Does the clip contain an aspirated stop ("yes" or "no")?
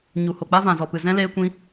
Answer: no